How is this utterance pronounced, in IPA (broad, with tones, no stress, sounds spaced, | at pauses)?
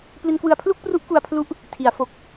p l i˧ n k w ɯ˧ a̯ pʰ l u˥˩ k̚ p r u˦˥ ʔ k u˧ a̯ pʰ l u˦˥ ʔ | tʰ i˩˦ a̯ f o˨˩ k̚